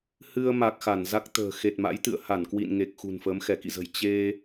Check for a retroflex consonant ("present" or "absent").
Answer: absent